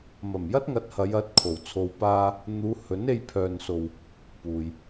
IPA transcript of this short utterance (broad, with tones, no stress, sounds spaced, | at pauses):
m ɐ˨˩ m j ɐ˥ t̚ ŋ ɐ˨˥ t̚ h ɐ˨˧ j ɐ˧ t̚ kʰ o˨˩ w t͡sʰ o˧ w p aː˥ | n̪ uː˨˧ h ɵ˨˥ n e˧ j pʰ œː˨ n s o˨ w | p uː˨ j